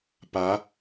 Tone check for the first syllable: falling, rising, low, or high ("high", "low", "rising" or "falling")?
rising